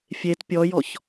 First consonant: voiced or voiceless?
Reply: voiceless